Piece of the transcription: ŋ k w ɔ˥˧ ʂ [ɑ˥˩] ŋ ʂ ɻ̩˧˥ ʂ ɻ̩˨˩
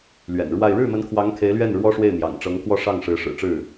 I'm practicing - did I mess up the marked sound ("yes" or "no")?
no